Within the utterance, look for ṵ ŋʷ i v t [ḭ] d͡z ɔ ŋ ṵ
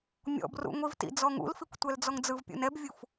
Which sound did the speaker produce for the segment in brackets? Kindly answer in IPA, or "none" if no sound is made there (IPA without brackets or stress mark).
ḭ